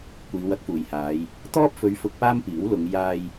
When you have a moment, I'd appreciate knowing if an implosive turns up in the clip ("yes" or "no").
no